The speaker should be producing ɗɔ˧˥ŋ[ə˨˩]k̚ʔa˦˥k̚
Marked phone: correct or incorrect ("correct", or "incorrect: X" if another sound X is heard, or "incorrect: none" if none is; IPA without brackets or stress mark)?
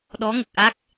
correct